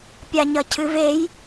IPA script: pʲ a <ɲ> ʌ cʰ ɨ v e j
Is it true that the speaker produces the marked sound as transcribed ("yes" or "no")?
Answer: yes